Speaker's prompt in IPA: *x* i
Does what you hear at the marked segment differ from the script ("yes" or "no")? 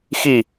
no